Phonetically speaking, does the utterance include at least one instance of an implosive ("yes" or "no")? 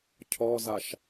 no